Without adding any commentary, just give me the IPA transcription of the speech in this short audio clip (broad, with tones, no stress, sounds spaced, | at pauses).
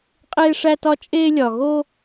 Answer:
qʼ eː˦ ʂ æ˦ t ɒ˦ t͡ʃʼ eː˦ lʲ ɒ˨ ɣ o˦